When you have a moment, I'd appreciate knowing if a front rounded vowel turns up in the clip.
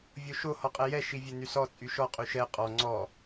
yes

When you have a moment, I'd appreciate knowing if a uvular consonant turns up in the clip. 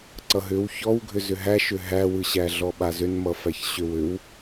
no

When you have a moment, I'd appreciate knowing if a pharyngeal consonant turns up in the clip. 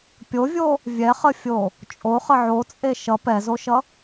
yes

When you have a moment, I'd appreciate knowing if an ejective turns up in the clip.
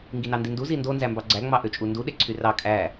yes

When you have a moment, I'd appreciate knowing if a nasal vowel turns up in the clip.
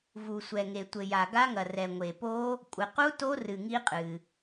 no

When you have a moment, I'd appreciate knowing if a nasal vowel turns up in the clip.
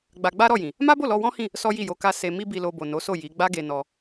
yes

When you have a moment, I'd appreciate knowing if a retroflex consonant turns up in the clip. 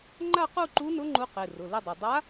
no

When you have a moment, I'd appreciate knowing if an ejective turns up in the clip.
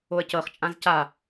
yes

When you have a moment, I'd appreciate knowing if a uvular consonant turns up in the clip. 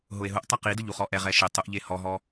yes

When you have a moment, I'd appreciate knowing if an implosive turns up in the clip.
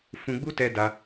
no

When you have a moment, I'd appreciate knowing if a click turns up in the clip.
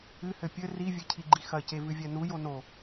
yes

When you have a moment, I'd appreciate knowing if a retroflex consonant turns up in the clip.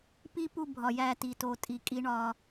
yes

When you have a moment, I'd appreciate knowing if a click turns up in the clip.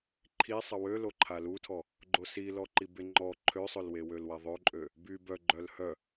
yes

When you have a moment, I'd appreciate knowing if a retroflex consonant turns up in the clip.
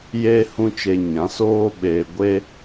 no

